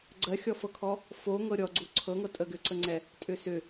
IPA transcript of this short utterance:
ɡ͡ǀɜxʲɔfɤkʰɔ | fo ŋɤɾʲɔ ɡ͡ǀuǀʰɤŋɤ tʼəɡʏǀəŋ͡ǀɛ | tʼʏsʏ

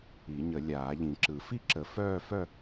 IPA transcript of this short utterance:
i˨˩˦ɲə˨˩˦ lʲaː˨˩˦ʎĩ˨˩˦ǁɯ˨˩˦ fi˥˧ǁə˨˩˦ fœː˥˧fœ˥˧

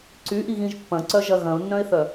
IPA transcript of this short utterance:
ǀyʔiɣĩʒ pːɐ̃ǀœʒɐ ɣɐ̃ʊ̯nːœ̃ɪ̯θœ

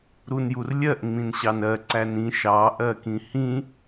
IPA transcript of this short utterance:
ɾunjurlʲɜʔ ŋ͡mĩnɕɑnɜ ǀænĩ ʃɑ ʔɜkĩhĩ

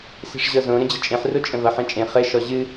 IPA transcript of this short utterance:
se̤ʂʑɤzõ ɾə̃d͡ʑət͡ʃʼẽħ rot͡ʃʼə̃vʌħ ẽt͡ʃʼẽ χɘ ʃɔʑɨ

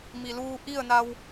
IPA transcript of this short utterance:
mi˩luː˧ ʔi˥˨ə̯na˧w

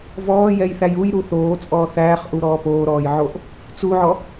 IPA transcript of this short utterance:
vɔːjɛjθæj ujɾu θoːt͡sʼɔː θæːχʔuɾɔː poːɾɔːjʕoʔ | t͡suʕɔ

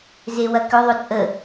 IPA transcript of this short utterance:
zewɐkʏ ðˤʏt͡sʼə

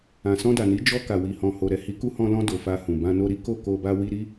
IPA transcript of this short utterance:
ã˨sɔ̃˧da˨ni˨˦ d͡ʒɔ˧ ka˨wi˨hɔ̃˨ ho˨ɾɛ˨ hi˨˦ku˧hɔ̃˧lɔ̃˧ do˨fa˧hũ˨ bã˧no˧ɾi˦ ko˦˨ko˧ba˧ wi˧ɾi˦

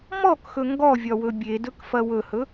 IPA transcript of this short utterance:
mɔkxɵ ŋɡɔvʲɒwɵ bʲedɵkfɐ wɵhɵ

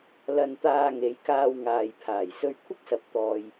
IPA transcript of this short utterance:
lɐ˧nt̪aː˧ŋe˨˧j kaː˧wŋaː˨jpʰaː˨˩j sɵ˧ɥkʷʰɐ˥k̚sɐ˨p̚ t̪ɔː˨j

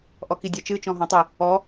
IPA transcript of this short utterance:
ʔɔkidʲat͡ʃɨ t͡ʃɔ̃ɦɔ̃tˤʊ | ɔ

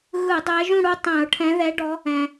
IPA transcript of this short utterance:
ɣɯ˧˩˧ dˤɛ˨˦ʒũ˥˨ɽu˥˨ tˤɛ̃˧˩˧ʊ̯ʈʰɛ̃˨˦ ðɛ˨˦ɖɔ˨˦ | ɛ̃˩

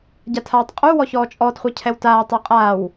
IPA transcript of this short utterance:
ɟatʰaːtˤqʼuwɔ çɔːt͡ʃʼɔtχʷɤ cʰɛwtaːtˤɤ qʼaːw

